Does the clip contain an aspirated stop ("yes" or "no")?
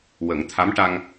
yes